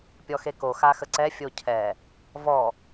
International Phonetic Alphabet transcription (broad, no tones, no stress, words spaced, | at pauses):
pʲɔxeko xaxəǀɛ fʲocʰɛ | vɔ